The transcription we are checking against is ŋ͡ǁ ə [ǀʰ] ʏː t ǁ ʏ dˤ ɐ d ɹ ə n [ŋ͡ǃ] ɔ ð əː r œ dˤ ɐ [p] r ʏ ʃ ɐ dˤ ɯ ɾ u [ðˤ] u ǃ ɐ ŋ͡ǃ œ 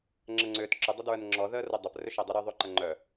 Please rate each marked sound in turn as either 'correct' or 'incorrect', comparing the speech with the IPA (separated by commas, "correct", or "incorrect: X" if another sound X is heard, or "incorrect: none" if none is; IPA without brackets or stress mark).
incorrect: ŋ͡ǀ, incorrect: ŋ͡ǁ, correct, correct